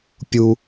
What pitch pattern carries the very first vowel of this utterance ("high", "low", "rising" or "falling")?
high